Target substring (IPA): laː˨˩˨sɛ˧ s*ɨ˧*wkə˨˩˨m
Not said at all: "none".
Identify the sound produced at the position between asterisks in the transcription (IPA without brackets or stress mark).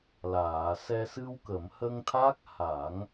ɨ˧